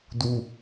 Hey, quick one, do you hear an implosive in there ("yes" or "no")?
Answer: no